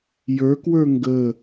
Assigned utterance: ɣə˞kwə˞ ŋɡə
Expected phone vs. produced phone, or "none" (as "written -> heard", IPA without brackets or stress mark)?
ɣ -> j